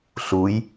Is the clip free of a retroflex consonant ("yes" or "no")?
yes